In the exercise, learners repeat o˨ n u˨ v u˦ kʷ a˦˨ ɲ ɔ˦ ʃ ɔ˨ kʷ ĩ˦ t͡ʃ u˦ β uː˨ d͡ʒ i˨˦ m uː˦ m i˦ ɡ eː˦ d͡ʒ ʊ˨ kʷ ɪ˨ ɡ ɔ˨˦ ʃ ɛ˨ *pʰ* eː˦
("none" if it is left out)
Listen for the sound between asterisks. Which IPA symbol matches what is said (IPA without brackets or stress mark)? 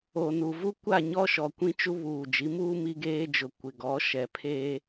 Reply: pʰ